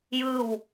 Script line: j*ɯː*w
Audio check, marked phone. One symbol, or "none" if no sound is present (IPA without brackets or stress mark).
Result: ɯː